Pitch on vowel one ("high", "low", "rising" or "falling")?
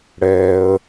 high